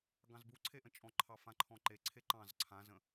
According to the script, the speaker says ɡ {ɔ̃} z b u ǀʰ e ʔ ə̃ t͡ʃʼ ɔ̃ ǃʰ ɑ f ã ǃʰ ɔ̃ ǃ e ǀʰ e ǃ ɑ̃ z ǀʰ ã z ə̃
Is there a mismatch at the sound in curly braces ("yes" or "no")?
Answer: yes